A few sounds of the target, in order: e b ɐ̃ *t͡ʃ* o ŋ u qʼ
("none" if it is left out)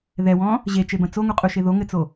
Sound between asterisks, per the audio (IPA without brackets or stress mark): t͡s